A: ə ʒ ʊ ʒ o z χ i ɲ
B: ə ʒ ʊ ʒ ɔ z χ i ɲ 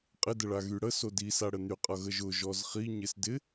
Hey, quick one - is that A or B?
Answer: B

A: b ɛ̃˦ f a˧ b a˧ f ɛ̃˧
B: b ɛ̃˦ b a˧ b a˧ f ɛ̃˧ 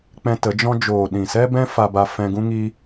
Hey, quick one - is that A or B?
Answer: A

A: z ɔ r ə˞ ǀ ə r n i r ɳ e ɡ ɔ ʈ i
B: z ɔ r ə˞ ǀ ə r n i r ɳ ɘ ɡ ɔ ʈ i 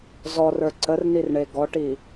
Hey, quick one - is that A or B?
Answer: A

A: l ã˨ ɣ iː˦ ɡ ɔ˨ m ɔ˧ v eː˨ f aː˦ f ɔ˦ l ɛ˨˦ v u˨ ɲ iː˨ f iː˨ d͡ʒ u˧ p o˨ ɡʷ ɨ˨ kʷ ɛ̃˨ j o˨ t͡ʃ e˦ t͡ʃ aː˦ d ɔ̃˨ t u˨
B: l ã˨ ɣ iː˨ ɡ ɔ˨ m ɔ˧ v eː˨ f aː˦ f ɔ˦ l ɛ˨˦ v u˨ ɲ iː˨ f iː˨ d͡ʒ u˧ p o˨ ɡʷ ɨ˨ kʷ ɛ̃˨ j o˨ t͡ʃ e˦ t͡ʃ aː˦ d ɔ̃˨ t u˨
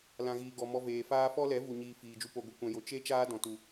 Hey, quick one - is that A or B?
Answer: B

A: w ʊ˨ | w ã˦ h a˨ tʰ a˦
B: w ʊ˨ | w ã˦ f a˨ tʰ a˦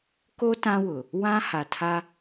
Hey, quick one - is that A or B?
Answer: A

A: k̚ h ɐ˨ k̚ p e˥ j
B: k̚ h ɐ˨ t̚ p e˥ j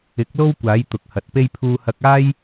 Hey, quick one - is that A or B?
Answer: B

